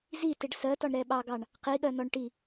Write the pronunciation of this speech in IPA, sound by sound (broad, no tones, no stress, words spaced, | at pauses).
zi tɪɖsɜtɒɳ ɾɛɓɑɡɑɳ | qiɠɜnɔɳ ʈi